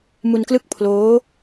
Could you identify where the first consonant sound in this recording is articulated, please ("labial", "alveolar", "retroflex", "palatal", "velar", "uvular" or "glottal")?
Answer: labial